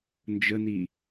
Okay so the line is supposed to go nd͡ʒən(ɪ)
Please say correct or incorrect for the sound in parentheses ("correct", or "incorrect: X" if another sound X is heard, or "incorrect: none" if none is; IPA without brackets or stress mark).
incorrect: i